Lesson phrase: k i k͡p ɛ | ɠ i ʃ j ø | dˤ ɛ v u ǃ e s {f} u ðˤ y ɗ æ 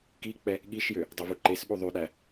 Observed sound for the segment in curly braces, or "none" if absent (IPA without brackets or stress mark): ɓ